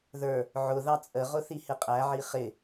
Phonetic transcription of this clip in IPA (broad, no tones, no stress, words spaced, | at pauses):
ðə˞ | ʕʊ ðɑt͡sʼəʁʊ θihɪqʼæʕi χɪ